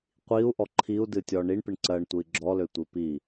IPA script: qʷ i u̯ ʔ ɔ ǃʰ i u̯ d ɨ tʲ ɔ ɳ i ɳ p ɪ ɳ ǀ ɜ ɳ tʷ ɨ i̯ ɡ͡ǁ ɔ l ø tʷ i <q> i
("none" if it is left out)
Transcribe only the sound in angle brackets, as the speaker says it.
p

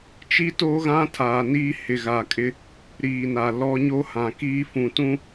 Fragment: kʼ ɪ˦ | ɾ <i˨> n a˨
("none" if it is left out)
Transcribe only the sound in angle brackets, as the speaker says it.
iː˨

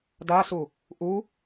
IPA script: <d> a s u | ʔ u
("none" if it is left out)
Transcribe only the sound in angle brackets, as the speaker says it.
d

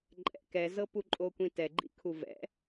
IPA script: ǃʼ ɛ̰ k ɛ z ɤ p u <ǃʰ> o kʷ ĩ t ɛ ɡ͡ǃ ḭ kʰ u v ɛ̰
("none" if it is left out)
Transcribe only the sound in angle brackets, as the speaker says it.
ǃʼ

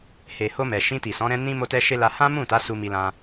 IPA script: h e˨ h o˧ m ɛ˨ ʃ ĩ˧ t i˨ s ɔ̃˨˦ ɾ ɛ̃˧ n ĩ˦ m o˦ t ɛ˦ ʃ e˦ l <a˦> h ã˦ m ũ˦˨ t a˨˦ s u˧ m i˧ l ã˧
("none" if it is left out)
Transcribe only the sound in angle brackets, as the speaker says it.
a˧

